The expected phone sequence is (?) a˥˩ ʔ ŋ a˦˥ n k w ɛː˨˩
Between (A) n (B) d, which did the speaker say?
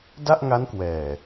B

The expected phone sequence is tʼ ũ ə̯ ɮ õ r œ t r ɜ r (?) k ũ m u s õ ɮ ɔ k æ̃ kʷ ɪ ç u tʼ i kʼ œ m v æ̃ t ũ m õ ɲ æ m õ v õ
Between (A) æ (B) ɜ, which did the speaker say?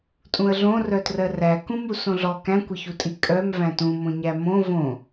A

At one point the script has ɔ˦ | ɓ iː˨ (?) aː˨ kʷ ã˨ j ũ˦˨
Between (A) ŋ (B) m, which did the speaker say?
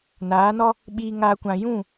A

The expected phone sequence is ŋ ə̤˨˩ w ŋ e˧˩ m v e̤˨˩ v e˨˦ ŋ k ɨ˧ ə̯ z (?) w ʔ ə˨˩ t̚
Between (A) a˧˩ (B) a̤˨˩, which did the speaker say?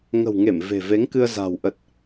B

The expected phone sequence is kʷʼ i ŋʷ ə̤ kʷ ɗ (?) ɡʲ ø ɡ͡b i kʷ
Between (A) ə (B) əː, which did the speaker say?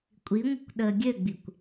B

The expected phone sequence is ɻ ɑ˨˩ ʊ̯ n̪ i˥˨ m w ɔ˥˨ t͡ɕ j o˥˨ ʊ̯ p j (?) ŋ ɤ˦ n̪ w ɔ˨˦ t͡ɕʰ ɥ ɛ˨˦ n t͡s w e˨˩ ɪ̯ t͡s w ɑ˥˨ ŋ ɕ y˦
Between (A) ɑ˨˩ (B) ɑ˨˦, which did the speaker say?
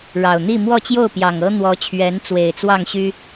A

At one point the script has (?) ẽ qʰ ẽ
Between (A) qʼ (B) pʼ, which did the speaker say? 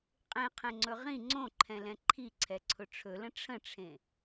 A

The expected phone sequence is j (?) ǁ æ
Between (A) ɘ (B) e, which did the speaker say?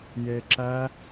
B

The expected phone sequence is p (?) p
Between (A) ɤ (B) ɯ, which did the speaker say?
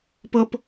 A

